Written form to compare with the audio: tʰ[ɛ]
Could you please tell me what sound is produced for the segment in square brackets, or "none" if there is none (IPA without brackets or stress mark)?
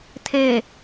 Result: e